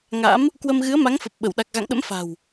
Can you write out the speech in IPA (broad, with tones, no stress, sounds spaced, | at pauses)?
ŋ a̰˧˥ m | k w ə˧ m ɣ ɨ˨˦ ə̯ m a˨˦ ŋ f ə˨˩ p̚ ɓ ə˧˩ w ɗ a˨˩ k̚ ɣ a̰˧˨ ŋ ɗ ə̰˧˥ m f a̤˨˩ w